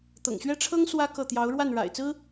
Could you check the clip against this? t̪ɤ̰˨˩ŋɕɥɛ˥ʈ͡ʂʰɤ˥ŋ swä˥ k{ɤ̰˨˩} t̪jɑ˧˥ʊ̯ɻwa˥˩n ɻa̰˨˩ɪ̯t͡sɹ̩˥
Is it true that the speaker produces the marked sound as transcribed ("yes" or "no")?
no